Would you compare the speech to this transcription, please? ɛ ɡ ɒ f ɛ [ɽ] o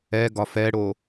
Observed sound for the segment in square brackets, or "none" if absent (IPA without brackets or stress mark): ɽ